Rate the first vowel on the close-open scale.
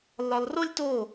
open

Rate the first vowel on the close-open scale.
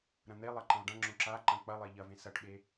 open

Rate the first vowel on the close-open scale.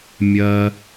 open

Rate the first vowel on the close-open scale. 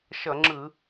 mid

